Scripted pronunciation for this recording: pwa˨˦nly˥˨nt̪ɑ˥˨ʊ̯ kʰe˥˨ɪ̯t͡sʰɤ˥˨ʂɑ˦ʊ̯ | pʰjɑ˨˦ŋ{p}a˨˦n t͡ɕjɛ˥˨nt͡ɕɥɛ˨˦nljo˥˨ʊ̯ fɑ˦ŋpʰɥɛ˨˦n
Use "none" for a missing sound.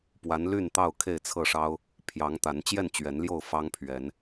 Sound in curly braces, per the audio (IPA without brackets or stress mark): t̪